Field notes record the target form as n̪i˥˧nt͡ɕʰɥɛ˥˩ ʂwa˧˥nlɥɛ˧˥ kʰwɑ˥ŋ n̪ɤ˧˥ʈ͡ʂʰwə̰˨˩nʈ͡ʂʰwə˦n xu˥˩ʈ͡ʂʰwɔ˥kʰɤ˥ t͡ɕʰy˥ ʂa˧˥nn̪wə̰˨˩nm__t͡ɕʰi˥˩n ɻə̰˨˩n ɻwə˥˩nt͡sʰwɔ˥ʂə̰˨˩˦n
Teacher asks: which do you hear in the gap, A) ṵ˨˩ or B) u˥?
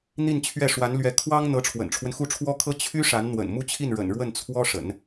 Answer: B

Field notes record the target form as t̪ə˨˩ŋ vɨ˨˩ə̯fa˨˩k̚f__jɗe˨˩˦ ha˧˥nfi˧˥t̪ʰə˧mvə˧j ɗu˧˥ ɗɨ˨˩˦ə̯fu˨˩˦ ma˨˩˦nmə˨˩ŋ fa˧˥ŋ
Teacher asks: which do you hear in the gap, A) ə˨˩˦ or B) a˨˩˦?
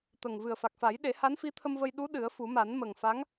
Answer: B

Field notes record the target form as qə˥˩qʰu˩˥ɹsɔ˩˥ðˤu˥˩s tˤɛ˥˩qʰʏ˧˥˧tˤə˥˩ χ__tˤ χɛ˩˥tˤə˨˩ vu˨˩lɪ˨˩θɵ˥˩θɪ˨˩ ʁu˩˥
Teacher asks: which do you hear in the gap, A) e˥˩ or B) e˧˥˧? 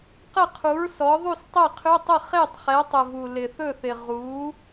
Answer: A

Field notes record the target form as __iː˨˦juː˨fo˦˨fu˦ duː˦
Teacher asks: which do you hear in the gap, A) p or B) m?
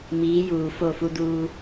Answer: B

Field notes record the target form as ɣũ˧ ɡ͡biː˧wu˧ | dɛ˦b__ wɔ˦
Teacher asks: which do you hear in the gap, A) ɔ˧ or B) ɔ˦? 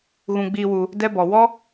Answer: A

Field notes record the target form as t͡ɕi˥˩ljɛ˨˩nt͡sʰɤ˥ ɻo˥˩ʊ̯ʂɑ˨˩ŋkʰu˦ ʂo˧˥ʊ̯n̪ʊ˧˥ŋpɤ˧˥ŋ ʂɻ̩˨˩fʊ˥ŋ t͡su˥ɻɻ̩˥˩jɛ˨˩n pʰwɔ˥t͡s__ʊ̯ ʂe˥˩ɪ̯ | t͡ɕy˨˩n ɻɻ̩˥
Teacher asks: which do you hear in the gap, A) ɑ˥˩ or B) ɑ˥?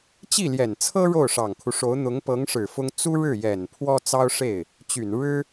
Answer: B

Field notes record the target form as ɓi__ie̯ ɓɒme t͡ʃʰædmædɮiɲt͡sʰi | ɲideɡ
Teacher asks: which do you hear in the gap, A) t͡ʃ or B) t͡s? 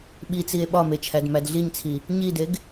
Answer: B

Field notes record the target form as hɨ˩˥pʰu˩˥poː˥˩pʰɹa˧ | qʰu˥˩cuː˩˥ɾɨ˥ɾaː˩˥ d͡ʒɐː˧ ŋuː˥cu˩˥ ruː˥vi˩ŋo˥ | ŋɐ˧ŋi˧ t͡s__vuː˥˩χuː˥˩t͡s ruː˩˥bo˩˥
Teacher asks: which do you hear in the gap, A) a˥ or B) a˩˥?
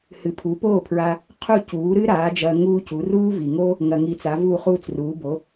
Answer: B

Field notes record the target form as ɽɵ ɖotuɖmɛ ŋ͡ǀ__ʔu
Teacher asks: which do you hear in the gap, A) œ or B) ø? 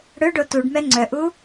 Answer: A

